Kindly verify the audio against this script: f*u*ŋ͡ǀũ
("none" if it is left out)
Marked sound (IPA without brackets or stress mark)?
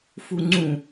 u